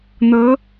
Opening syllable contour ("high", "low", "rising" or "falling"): rising